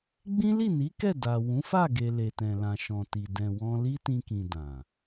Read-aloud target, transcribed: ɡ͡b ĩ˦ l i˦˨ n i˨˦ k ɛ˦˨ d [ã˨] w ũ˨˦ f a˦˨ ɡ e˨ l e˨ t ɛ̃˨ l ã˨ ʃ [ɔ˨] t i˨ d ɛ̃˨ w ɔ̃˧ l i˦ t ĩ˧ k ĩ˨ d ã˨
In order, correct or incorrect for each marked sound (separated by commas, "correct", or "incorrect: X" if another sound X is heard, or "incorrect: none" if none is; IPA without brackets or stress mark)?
incorrect: a˨, incorrect: ɔ̃˨